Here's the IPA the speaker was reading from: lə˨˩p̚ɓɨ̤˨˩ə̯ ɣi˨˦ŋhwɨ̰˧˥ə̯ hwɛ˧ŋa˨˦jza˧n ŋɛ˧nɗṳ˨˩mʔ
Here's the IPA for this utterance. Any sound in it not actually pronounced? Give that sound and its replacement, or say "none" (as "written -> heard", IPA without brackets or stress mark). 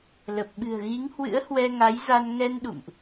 ṳ˨˩ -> ṵ˧˨